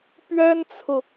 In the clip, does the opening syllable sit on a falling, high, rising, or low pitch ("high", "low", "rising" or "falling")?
high